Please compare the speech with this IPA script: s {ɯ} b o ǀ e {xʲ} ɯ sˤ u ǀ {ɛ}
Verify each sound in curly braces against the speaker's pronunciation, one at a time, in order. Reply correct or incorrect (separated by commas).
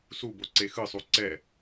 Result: incorrect, incorrect, correct